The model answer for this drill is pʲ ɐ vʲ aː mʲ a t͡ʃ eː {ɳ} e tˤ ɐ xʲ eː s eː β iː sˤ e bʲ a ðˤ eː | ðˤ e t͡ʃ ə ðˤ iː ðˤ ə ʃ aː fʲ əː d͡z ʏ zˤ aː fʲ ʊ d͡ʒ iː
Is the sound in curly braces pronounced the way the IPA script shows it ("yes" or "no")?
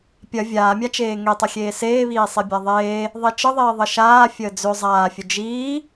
no